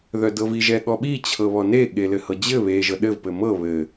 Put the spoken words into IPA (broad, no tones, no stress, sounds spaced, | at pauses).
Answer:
ð œ d ɤ v i ʒ ɛ ɠ ɔ ɓ i t͡ɕʰ ɤ β ɔ n e ɠ e l ɘ h ɤ d͡ʑ ɘ β e ʒ ɤ ɗ ɘ v p ɘ m ɤ β ɘ